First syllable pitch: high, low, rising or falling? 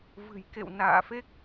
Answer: low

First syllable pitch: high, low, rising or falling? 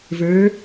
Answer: rising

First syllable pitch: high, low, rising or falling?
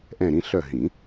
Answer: falling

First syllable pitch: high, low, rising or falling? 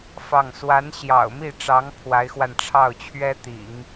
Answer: falling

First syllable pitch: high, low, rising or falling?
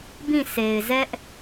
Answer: falling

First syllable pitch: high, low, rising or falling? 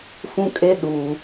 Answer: high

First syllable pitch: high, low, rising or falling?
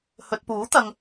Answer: low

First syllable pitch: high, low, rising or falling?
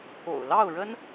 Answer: low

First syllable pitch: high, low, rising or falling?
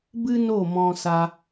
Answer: high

